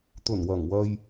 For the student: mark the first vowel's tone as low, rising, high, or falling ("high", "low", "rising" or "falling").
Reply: low